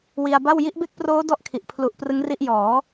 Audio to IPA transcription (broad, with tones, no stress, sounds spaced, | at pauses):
w i˧ a̯ b a˥˩ w j i˦˥ ʔ b e˥˩ k̚ p r oː˦˥ d ɔ˥˩ ʔ kʰ i˨˩ ʔ pʰ l u˨˩ ʔ p r ɯ˦˥ ŋ r i˦˥ ʔ j ɔː˩˦